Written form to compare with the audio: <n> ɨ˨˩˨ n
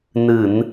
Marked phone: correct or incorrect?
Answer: correct